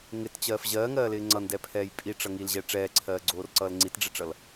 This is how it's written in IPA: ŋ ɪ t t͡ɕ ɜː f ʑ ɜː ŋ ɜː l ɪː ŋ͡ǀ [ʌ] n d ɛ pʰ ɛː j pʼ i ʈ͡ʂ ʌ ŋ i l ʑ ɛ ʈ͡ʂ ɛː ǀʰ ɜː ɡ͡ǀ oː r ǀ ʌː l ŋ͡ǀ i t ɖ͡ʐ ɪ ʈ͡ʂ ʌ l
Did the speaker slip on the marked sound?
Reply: no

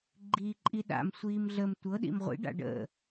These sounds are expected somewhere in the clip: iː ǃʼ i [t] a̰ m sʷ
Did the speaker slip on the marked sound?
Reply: yes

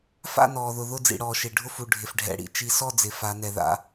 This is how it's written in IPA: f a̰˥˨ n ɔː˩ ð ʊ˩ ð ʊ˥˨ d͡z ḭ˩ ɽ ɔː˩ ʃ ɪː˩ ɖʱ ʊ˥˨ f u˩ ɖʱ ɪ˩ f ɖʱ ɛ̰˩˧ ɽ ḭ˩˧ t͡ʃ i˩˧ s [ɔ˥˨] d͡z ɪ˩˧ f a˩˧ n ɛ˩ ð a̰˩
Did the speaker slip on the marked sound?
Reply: no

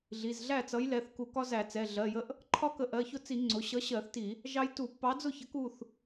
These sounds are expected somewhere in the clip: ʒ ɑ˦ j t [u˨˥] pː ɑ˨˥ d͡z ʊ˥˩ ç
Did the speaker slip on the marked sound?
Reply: yes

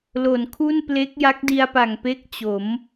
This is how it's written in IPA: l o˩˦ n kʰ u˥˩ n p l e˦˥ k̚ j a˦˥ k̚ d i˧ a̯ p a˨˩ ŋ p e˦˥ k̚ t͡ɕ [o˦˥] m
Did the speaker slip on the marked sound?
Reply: yes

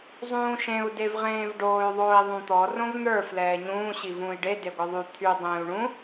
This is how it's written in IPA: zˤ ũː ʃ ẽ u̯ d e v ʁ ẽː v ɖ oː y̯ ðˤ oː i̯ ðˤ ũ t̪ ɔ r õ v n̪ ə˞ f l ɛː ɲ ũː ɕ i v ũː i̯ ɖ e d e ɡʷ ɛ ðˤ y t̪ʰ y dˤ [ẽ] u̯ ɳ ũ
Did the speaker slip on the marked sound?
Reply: yes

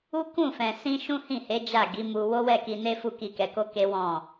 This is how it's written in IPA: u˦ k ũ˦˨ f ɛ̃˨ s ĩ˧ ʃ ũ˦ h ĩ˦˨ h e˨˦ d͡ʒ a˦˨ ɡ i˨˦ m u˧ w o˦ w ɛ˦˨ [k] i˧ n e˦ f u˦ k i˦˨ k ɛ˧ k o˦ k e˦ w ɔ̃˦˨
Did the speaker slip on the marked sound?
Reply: no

